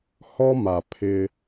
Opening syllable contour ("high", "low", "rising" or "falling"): high